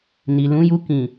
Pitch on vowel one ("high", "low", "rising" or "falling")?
low